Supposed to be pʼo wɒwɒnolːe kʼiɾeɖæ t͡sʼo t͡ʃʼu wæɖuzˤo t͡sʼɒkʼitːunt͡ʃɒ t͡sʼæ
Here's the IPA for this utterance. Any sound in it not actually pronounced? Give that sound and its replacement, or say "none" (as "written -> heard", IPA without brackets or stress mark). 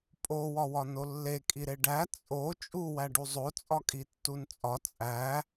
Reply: t͡ʃ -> t͡sʼ